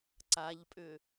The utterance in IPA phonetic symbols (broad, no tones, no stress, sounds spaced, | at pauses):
ǀ a ʎ pʼ ʏ